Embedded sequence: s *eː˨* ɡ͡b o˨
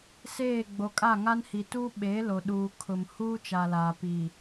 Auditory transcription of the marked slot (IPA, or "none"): eː˦˨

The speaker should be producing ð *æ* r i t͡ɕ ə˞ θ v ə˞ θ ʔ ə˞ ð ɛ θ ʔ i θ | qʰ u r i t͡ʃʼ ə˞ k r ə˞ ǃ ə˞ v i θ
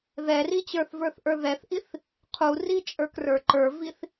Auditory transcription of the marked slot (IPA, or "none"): ɛ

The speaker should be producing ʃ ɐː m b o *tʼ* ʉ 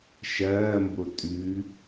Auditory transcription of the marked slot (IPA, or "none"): tʼ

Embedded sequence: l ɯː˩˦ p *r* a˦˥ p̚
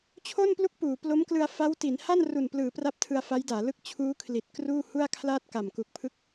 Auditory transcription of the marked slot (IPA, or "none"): r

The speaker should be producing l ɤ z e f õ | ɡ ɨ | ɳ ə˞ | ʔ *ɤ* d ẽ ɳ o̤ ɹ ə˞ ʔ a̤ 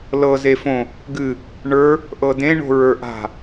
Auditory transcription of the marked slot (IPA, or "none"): ɤ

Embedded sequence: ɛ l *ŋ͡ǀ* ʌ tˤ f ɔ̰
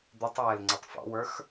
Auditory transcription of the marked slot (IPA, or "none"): ŋ͡ǀ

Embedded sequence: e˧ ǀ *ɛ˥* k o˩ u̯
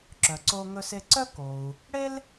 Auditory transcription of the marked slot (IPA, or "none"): œ˥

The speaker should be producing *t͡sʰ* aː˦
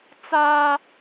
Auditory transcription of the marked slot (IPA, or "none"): t͡s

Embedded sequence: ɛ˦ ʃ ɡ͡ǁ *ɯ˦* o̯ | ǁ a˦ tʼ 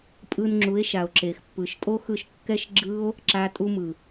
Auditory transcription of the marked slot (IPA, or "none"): ɯ˦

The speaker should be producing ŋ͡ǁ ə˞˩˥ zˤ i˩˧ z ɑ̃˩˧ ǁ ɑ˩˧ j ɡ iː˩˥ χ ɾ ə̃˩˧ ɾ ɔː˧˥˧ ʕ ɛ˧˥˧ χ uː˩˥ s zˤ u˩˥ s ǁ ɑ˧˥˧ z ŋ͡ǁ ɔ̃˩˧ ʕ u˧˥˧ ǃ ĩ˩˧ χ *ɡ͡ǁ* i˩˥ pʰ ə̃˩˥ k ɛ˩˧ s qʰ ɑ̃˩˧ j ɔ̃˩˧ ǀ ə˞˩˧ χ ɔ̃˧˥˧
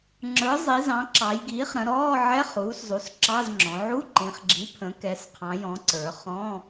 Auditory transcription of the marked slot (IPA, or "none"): ɡ͡ǁ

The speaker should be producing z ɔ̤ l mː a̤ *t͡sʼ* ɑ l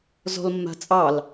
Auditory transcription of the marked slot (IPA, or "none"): t͡sʼ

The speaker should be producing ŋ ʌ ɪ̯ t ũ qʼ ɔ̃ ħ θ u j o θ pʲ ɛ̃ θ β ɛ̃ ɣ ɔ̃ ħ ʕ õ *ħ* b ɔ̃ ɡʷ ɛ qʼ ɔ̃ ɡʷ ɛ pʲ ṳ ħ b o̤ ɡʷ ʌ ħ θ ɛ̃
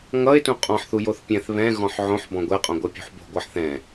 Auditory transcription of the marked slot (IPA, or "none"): ħ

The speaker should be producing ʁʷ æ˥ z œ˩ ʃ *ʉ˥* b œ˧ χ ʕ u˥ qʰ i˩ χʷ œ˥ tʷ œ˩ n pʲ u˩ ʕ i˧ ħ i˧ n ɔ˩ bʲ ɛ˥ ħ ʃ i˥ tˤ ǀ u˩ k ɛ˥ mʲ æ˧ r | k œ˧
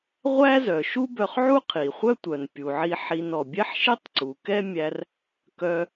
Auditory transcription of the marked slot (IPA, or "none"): u˥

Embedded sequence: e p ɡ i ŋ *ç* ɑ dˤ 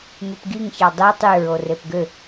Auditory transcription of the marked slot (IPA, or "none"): ç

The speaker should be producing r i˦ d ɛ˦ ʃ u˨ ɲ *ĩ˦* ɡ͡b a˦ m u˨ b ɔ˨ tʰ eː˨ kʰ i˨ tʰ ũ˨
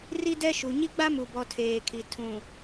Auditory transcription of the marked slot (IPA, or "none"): i˦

